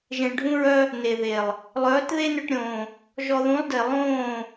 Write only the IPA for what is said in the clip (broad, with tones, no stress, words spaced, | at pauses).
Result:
ʒẽ˨ɭɖʱũ˧ɹœ˧ | ne˨ðe˨lˠ | lˠœː˨˦tðe˦nʏ˧ʈɾʲõː˨ | ʒɔ˧ ðũ˨˦lˠde˨ lˠõː˦˨